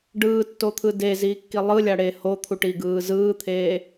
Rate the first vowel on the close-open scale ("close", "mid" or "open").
close